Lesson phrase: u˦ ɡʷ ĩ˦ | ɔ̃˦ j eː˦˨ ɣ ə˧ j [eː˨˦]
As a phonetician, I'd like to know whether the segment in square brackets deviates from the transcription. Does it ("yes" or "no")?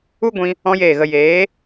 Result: no